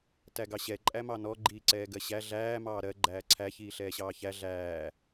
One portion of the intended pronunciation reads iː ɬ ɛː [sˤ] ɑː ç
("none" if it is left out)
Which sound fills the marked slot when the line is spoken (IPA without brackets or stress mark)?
ɕ